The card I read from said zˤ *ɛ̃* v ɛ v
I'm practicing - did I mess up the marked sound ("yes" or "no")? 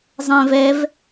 no